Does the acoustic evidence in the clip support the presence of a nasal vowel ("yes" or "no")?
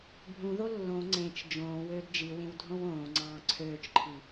yes